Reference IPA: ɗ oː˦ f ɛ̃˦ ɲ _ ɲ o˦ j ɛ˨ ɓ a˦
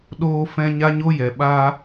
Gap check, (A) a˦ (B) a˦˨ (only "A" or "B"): A